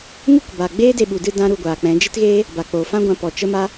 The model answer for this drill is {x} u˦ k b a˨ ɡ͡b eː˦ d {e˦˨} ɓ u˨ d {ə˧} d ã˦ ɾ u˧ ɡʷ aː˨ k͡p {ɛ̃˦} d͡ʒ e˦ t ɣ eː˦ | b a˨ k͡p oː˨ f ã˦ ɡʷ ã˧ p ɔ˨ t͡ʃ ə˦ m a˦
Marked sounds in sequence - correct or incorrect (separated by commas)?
incorrect, incorrect, incorrect, incorrect